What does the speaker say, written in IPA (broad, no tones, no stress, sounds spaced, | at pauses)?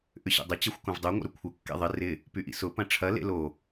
ʔ ʏ ɕ ḭ dˤ ɪ t͡ɕ ɛ xʷ k õ v dˤ ø ŋʷ ə̰ ɾ ʏ kʷʰ ə kː ḛ ðˤ ɪ r ɪ | p y ʔ ḭ s ʊ p ɐ̃ ʈ͡ʂʰ ɐ l ḛ l o